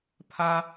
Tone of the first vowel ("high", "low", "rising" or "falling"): high